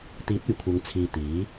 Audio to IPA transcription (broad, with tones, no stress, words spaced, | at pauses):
t̪iː˨˥t̚ɵ˨˩ɥkʷʰɐ˨˧ŋ t͡sʰiː˨ t̪iː˨˥